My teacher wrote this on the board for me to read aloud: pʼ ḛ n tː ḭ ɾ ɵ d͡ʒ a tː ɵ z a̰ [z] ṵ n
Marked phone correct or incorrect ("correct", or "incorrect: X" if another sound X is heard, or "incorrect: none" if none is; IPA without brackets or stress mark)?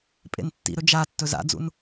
incorrect: d͡z